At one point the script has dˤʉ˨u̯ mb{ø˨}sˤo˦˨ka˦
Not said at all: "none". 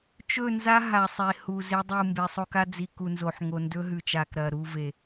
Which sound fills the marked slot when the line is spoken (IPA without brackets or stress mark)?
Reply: e˨